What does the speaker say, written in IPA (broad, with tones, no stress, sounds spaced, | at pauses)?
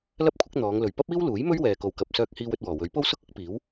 l ɐ˥ p̚ kʷʰ ɪ˨˥ k̚ n̪ ɔː˨˧ ŋ l ɵ˨ ɥ p ɐ˥ p̚ iː˥ w l uː˨˥ j m ɵ˥ ɥ w ɛː˨ k o˨ w k ɐ˨ p̚ s œː˧ k̚ h iː˧ w ɵ˧ t̚ w ɔː˨˩ w ɵ˨˥ ɥ p o˥ w s ʊ˥ k̚ ʊ˥ k̚ p iː˨˥ w